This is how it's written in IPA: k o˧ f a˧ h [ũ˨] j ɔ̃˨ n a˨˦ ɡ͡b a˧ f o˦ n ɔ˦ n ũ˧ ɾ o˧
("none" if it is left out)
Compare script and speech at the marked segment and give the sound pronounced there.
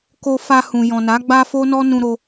ũ˨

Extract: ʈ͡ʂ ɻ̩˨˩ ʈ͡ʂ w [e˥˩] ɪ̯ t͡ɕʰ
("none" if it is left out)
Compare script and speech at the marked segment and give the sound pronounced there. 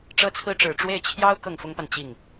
e˥˩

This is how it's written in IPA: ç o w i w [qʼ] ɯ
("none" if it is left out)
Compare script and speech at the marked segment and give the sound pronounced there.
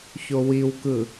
k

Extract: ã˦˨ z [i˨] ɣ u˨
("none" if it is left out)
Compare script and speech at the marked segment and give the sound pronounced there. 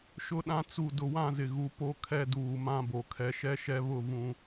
ɪ˨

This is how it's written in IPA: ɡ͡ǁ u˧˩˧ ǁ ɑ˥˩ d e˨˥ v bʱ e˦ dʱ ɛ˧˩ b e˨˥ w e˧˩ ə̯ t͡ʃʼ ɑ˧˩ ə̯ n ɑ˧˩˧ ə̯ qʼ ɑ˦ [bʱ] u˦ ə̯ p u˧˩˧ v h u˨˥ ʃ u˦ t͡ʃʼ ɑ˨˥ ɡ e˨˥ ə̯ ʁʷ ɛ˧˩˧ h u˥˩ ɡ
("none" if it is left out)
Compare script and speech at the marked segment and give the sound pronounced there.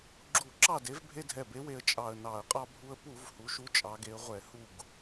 bʱ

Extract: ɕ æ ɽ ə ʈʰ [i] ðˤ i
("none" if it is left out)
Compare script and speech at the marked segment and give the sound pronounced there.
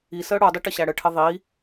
ɪ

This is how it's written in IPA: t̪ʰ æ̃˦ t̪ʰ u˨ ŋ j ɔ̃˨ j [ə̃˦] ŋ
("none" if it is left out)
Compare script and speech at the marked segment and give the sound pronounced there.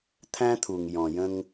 ə̃˦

